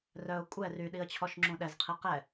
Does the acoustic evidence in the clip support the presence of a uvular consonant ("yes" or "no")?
yes